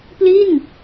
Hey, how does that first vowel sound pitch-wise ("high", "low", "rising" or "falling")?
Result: falling